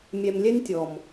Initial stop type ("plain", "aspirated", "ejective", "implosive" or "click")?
plain